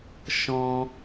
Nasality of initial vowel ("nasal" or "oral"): nasal